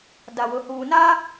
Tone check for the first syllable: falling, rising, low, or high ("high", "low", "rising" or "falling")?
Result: low